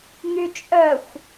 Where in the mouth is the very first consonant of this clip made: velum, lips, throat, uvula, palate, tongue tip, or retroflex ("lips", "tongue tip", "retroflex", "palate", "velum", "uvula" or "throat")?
velum